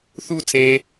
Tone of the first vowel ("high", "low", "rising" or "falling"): falling